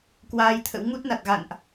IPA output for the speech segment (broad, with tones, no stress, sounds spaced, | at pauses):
k w aː˧ j t̪ʰ ə̰˧˥ w ŋ u˦˥ t̚ n a˨˩ t̚ ɣ a̰˧˨ n ʔ